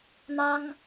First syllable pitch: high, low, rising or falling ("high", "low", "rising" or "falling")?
high